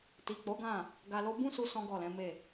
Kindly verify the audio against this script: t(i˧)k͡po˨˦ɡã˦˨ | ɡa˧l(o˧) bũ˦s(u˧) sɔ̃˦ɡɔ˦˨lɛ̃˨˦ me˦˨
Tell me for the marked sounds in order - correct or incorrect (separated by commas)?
incorrect, incorrect, correct